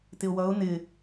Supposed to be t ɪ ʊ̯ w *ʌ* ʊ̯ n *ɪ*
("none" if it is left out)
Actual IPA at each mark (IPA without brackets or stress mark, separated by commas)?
ʌ, ɪ